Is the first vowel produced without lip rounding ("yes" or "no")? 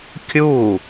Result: no